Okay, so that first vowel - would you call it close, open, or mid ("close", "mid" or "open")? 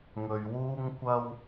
mid